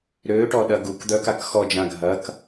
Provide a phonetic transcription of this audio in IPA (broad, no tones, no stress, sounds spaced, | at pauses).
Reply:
ɾ øː ʈ ɔ ɗ ɐ ɡ u k d̪ œ k a k x ɔ d͡ʒ ã ɡʱ ɐ k